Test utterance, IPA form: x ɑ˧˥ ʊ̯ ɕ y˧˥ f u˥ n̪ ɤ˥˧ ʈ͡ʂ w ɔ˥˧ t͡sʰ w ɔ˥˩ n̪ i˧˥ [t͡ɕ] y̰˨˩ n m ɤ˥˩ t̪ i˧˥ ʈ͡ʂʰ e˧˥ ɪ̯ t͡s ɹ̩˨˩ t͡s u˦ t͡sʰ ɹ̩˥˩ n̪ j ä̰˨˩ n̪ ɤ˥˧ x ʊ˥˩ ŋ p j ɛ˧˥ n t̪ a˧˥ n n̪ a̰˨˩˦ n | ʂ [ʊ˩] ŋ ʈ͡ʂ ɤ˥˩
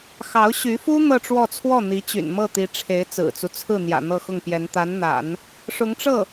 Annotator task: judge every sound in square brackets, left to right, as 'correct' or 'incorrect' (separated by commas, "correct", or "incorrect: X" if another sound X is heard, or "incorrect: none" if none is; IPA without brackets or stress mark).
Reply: correct, incorrect: ʊ˧˥